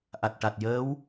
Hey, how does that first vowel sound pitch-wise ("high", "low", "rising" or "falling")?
low